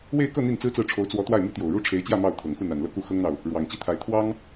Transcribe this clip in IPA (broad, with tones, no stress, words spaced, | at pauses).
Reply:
we˥˧ɪ̯ kɤ˥˧ n̪i˥˩nt͡sɹ̩˥t͡sɹ̩˥˩ ʈ͡ʂʰo˧˥ʊ̯t͡swɔ˧˥ t̪wa˥˩ɪ̯my˥t̪jo˨˩ʊ̯ ɻu˥ʈ͡ʂʰe˧˥ɪ̯t͡ɕjä˥˧ mɑ˥˩ʊ̯t̪ʰɤ˨˩ŋ xu˥˩n̪a˨˩n lɤ˥˧ku˥˩ xɤ˥ŋn̪ɑ˨ʊ̯ | ɻwɑ˨˩ŋt͡ɕi˥t̪ʰa˧˥ɪ̯ t̪ʰwɑ˥ŋ